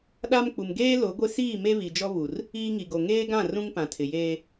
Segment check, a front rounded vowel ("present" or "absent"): absent